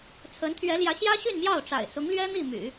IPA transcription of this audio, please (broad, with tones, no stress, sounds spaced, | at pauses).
t͡sʰ ə˧˥ n t̪ʰ ɥ ɛ˧˥ l j ä˧˥ ɕ j ä˥ ɕ y˥˧ n m j ɑ˥˩ ʊ̯ ʈ͡ʂ a̰˨˩ ɪ̯ s ʊ˧˥ ŋ l ɥ ɛ˥ n̪ i˥˩ m y̰˨˩˦